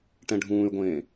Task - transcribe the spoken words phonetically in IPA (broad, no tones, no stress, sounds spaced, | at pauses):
ʈ ɛ̃ ɖʱ ũː y̯ ɡʷ ẽː